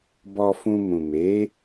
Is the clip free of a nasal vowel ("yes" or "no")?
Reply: no